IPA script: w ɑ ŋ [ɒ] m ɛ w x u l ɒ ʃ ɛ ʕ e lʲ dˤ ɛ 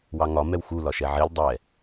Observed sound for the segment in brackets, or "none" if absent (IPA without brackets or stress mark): ɒ